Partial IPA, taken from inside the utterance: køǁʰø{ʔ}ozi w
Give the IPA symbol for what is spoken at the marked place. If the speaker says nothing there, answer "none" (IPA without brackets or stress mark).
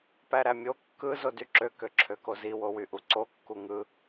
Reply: k